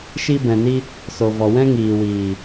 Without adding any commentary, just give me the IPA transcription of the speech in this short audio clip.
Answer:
ʃ i˧ b ɛ̃˨ n i˧ | s o˨ v ɔ˨ w ɛ̃˦ ŋ iː˨ w iː˨

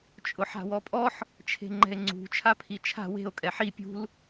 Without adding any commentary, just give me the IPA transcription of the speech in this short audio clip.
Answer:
t͡ʃʼ ʊ ħ a̤ w ɔ pʼ ɔ ħ | t͡ʃʰ e̤ ŋ͡ǃ ɛ̤ e̯ ŋ͡ǀ ṳ t͡ʃʰ a pʰ i t͡ʃʰ a̤ w e̤ o̯ kʼ ɛ ħ i pʲ ṳ l

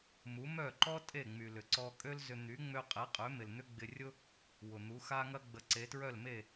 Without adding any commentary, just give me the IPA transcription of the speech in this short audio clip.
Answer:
m u˩˥ m œ˥˩ ǃ ɔ˥ tʼ e˥˩ ŋ͡m y˩ l ʏ˩ ǀ ɔ˧ kʼ ø˥ l z ʏ˧ n̪ y˩˥ ŋ͡m ø˧ qʼ e˩˥ qʼ ø˩˥ m ɪ˩ l n̪ ʏ˥ ɡ͡b ɪ˧ rʲ ʊ˥ | w ʊ˩ n̪ u˩˥ x a˥ ŋ ɐ˥ ɡ͡b ə˩˥ ǀ e˩˥ t ɹ œ˥˩ l m e˥˩

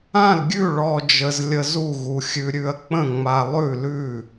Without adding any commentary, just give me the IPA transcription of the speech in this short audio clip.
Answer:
ã˥˨ l ɡʲ ʉ˥˨ ɭ ɔ˧ d͡ʒ ə˧ z lʲ ə˧ z u˥˨ ɣ u˧ xʲ ʉ˧ ɾʲ ʉ˧ ɐ̯ k͡p ə̃˥˨ ŋ͡m a˧ lˠ ʉ˥˨ l ʉ˥˨

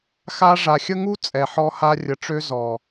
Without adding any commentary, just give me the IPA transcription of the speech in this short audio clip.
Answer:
x a˦ ʐ a˨ xʲ ə˦ ŋ u˦ t͡sʼ ɛ˨ ħ ɔ˦ h a˦ rʲ ə˨ ʈ͡ʂ ø˦ z ɔ˨

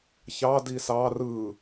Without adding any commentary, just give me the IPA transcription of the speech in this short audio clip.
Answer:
ç ɑ d i s ɑ r ɯ

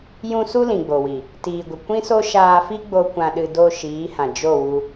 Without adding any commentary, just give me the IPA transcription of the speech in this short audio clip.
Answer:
j ũ˦ s u˦ l ĩ˨ ɡ͡b o˨ w i˨ | t iː˨ ɡʷ ə˨ kʷ ĩ˦ s o˦ ʃ aː˧ f i˦ ɡ͡b o˦ kʷ ã˧ ɗ ɨ˧ d o˦˨ ʃ iː˨˦ h ã˨ d͡ʒ o˦˨ w u˧

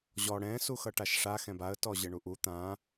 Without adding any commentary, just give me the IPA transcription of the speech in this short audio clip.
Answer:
ʑ ɔ ɽ ɛ̃ s u x ʌ ʈ a ʃ ʂ a x ɛ̃ b a ə̯ t ɔ ʑ ɘ ɳ u ʔ u t̪ ã

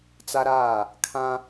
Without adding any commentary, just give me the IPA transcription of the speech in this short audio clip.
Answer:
t͡s a˦ ɾ aː˦˨ | kʰ ã˦

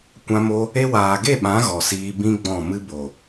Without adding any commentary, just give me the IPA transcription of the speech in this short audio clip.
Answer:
kʷ ã˧ m o˧ | e˧ w aː˨ ɡ e˦˨ ɓ ã˨˦ ɣ ɔ˨ s iː˧ b ĩ˦ ɡ͡b ɔ̃˦˨ m ɨ˦ b o˨

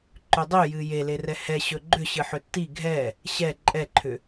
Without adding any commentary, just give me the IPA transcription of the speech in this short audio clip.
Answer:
ǃ ʏ dˤ ʏ j ɨ j e l e r ɛ h ɛ ɕ ɵ ɡ͡ǃ ʏ ɕ ɨ ħ ʏ tː i ɡʱ ɛ | ɕ ɛ ǃʼ ɛ ǃʰ ʏ

